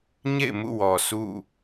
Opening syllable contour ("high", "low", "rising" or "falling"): falling